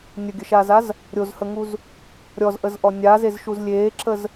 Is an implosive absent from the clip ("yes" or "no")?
yes